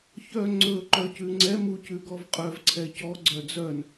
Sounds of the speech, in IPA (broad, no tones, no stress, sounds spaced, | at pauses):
ç œ ŋ͡ǀ ɵ ǃ œ c ʉ ŋ͡ǀ ɛ m u c ʉ ɡ ɔ v qʼ œ v ǀʰ ɛ c ɔ ɡ͡ǀ œ d͡z œ n